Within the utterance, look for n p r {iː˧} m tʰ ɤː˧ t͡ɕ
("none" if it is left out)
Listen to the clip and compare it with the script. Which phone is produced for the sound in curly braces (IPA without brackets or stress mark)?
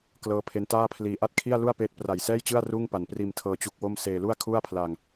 iː˧